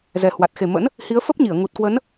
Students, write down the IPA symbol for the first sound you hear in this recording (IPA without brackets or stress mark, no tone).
z